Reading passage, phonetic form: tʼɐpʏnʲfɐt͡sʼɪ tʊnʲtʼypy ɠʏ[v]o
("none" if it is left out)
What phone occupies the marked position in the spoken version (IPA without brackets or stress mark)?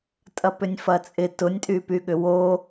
w